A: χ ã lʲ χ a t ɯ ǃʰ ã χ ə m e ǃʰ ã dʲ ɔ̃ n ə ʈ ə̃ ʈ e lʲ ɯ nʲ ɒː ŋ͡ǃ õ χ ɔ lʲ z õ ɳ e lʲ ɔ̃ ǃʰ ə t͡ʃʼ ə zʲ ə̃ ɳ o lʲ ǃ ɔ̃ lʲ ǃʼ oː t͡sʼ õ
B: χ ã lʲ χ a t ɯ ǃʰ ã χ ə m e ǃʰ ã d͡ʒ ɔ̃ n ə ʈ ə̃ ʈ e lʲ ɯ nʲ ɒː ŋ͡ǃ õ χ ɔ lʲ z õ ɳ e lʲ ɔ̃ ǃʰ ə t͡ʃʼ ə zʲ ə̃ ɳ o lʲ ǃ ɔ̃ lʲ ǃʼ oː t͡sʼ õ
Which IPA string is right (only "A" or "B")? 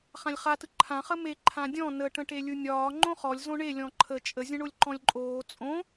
A